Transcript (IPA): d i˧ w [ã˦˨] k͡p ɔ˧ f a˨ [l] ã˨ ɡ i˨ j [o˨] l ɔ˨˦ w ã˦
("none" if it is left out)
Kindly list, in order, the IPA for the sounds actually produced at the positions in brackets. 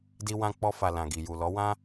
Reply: ã˧, l, u˨

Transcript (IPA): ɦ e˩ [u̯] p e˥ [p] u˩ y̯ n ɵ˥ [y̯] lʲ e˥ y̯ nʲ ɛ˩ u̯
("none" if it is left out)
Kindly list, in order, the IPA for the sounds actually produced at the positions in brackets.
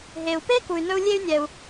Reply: u̯, k, u̯

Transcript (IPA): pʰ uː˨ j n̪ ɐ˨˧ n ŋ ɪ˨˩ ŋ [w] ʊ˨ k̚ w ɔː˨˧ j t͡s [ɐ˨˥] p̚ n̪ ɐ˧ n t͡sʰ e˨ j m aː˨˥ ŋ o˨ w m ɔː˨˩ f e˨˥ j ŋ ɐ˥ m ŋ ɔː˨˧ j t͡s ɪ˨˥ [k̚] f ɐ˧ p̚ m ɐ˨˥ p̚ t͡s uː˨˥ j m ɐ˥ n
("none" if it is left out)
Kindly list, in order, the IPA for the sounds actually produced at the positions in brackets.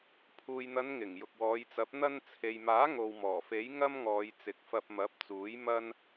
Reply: j, ɐ˨˥, k̚

